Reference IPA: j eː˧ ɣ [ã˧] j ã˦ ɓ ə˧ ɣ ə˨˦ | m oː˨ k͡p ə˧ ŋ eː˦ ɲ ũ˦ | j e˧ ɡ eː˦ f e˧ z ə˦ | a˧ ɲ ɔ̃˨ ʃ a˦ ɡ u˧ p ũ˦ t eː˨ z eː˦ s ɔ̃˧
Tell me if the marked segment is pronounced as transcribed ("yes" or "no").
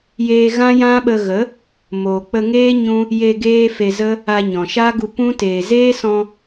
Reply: no